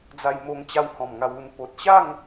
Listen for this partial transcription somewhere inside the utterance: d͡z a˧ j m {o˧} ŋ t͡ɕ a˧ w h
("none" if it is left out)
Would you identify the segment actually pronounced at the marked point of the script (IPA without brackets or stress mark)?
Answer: o˧